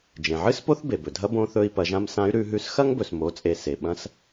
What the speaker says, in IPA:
d͡ʒ ẽ˩ ʕ ɨ˥ s p o˥ θ b e˩ b ɵ˩ dʱ ɐ˥ b õ˧˥ θ ɵ˧ i̯ p ɐ˩˧ ʒ ã˧ m s ã˧˥ y̯ ɾ ʉ˧ ɦ ʉ˧˥ s x ɐ˥ ŋ b ɵ˩ s m o˩˧ t͡sʼ e˩ s e˩ ɓ ɐ̃˧˥ s

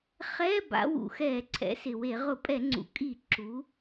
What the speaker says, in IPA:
χ ɛ˧˥˧ b a̰˩˧ w ṵ˩ x ɛ˧˩˧ ǀʰ ɛ̰˩˧ s ɪ˩ w e˧˩˧ ʁ ʊ˧˩˧ pʼ ɛ˧˩˧ ŋ͡ǀ ṵ˩ kʼ i˧˩˧ ǁ u˩˧

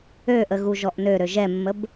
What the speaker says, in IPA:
ø ʔ ə ɣ u ʒ ɔ ʔ n ø ɾ ø ʒ ɛ mː ə b

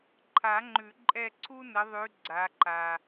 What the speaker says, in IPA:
ǃʰ a˨˩˦ ŋ͡ǃ ʉ˨˩˦ ǃʼ ɛ˦˨ ǀʰ u˥ n ə˨˦ ðˤ ʉ˨˦ ɡ͡ǀ a˨˦ ǃ a˨

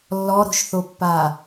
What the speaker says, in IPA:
lː ɔ ɾ o̤ ʃ θ o pː a

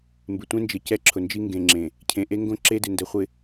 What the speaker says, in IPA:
m b ɪ˨ tʷ ẽ˦ n d͡ʒ ɪ˨ c ɛ˦ ǁʰ ʊ˨ n d͡ʒ i˦ ŋ ɡ ẽ˨ ŋ͡ǁ ẽ˨ | cʰ ẽ˨ ʔ e˦ ŋ ɡ õ˦ ǁ e˦ d ɪ˨ n d ɛ˨ χʷ ɪ˨

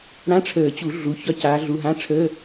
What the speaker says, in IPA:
ɽ ã˧˥˧ ʈ͡ʂʰ əː˨˩˦ t͡ɕ u˨˩˦ ɮ u˩˧˩ ç ɒ˥˨ c aː˧˥ ɮ u˧˥˧ ɦ ã˧˥˧ ʈ͡ʂʰ əː˧˥˧

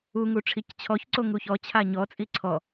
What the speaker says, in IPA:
u ŋ u ʈ͡ʂʰ i c t͡ɕʰ ɔ ç ǀ o ŋ u ç ɔ t͡ɕʰ a ɲ ɔ t͡sʼ i ǀʰ ɔ

